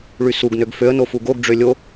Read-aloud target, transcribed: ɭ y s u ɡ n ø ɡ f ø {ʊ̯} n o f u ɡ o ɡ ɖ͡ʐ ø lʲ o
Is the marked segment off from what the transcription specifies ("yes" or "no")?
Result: yes